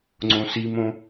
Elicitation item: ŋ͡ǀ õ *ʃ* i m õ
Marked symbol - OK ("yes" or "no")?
no